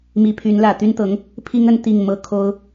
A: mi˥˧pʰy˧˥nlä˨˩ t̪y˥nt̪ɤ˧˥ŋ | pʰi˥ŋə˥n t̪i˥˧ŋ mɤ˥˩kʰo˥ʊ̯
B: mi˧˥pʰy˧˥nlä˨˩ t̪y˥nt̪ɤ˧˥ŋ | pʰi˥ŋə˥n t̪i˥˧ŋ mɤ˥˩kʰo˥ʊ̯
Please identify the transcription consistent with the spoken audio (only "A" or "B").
B